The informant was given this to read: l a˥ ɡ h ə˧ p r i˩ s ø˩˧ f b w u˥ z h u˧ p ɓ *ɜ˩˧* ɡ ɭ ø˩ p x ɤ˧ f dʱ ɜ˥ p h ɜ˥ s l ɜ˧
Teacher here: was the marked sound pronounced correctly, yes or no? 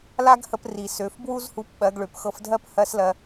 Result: yes